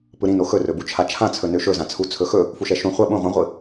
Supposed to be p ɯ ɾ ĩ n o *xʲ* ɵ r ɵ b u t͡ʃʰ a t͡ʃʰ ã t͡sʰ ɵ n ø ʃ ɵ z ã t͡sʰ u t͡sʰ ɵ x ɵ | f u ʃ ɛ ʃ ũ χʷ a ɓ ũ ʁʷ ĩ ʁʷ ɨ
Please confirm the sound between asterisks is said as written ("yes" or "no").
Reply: no